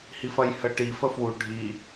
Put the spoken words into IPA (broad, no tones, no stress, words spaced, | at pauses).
hifɐjhəʈi fəfwu ɖʱi